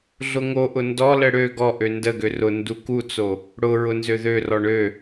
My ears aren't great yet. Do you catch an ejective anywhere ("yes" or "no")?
no